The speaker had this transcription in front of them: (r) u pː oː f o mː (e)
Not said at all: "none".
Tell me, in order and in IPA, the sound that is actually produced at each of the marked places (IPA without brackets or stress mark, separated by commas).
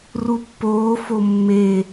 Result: r, e